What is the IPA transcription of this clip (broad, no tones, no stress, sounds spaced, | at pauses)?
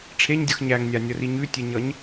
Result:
ʈ͡ʂʰ e ɲ dʲ ʌ x ɲ æ ŋ nʲ a nʲ ʌ r i ɲ ʉ tʲ e ɲ ʌ ɲ